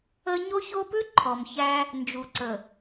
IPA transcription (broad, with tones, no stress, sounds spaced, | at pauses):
ə˦ ɲ o˦ ç o˦ p ʉ˦ ǃʰ ɔ˨ m ç æ˦ | n d͡ʒ u˨ ǀ ə˨